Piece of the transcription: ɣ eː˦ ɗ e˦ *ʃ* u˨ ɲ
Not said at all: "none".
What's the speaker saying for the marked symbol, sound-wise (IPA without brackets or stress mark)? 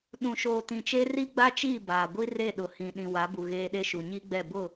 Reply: ʃ